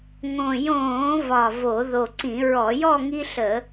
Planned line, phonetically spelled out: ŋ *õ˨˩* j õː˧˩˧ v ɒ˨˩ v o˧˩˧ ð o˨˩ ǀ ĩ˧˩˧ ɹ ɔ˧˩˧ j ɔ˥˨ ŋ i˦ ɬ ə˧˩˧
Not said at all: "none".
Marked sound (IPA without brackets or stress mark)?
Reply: õ˨˩